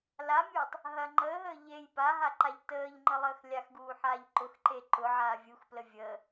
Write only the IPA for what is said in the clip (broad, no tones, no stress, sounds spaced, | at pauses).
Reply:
l a mʲ uː tˤ | ɦ ɐ ŋ͡ǃ əː ɦ əː ʎ e j p a ɦ a ǃ a ʎ t əː ʎ ŋ͡ǃ ə lˠ əː x lʲ a x ɡ uː ħ aː ʎ ǃ ʊ x ǃ e ǃ ʊ ʕ aː vʲ u x p l ə vʲ əː